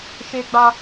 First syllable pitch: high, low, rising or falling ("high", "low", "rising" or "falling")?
high